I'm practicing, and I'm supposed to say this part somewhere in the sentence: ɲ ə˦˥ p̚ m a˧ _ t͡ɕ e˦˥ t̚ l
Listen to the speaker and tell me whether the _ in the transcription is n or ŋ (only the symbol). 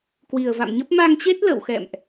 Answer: ŋ